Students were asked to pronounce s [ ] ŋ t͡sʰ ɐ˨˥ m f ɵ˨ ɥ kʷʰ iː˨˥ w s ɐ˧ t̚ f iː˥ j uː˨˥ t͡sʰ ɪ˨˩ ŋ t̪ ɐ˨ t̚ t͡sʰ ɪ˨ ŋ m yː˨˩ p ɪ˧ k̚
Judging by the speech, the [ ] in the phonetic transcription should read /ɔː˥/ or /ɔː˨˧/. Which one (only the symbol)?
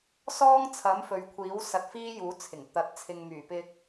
ɔː˥